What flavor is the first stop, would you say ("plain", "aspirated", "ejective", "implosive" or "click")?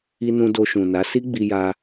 plain